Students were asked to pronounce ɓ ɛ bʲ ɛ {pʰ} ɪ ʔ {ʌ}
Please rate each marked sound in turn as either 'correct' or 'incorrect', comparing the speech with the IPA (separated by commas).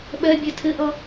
incorrect, correct